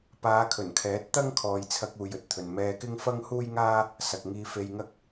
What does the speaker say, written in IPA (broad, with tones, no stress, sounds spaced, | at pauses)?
p aː˨˧ kʰ ɵ˨˩ n kʰ ɛː˨˥ t̚ t̪ ɐ˥ ŋ kʰ ɔː˨ j t͡sʰ ɐ˧ k̚ uː˨ j ɵ˨ t̚ t̪ʰ ɵ˨ n m ɛː˧ k ɪ˥ ŋ f ɐ˥ ŋ h uː˥ j ŋ aː˥ | s ɐ˨ k̚ ŋ iː˧ f e˧ j ŋ ɐ˥ k̚